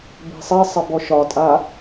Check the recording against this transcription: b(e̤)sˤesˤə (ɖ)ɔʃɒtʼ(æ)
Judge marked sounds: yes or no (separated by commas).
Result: yes, no, no